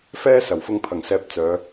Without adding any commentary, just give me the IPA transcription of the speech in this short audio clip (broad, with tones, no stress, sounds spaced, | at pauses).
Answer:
f ɛː˧ s ɐ˨˩ w f ʊ˧ ŋ pʰ ɐ˨˩ ŋ s ɛː˧ p̚ t͡s œː˨˧